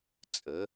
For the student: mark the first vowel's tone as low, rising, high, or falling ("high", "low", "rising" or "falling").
rising